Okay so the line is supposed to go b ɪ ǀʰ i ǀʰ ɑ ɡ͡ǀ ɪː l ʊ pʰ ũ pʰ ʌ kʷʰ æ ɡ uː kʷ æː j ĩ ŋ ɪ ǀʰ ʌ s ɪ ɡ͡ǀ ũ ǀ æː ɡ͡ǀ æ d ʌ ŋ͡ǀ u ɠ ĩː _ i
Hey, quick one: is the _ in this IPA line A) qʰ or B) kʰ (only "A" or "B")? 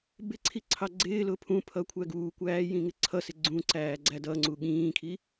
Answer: B